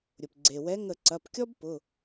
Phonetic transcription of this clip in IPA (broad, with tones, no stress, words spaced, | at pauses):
ɾʲʊ˩pɡ͡ǀe˩wɛ˨˥ ŋə˧˩˧ǀɐ˩˧˩pkʲɔ˥b pʊ˩˧˩